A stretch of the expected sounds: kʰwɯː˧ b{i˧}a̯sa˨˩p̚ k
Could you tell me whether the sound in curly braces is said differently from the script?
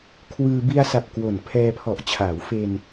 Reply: no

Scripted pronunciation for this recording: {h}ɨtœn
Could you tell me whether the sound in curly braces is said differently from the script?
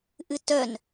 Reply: yes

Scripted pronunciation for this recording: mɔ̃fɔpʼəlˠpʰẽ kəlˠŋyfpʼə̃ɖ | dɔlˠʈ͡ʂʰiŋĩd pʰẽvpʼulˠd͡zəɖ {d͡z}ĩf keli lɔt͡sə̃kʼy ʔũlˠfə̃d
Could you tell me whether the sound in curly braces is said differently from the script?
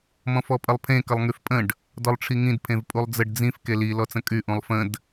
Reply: no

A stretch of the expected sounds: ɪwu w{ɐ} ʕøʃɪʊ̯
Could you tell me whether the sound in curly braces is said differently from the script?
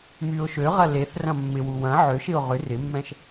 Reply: yes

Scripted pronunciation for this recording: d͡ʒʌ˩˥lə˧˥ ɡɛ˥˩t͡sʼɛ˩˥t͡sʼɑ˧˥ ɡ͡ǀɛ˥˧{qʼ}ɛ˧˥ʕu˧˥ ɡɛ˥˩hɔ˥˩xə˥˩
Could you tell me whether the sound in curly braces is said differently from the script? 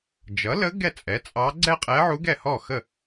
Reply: no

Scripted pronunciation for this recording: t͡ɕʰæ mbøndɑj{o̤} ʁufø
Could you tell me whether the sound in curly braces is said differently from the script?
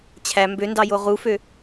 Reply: yes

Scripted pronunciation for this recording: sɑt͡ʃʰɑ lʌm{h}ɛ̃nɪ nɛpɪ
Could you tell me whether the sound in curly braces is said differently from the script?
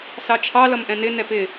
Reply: yes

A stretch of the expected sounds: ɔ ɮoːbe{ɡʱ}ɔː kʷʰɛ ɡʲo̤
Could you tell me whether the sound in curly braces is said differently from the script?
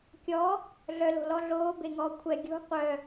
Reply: yes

